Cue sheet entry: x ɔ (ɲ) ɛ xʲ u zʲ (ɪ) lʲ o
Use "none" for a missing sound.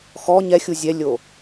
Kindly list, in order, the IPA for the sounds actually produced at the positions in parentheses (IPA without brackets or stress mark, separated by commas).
ɲ, ɛ